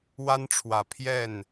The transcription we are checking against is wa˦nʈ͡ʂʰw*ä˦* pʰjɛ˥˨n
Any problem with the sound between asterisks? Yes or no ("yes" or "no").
yes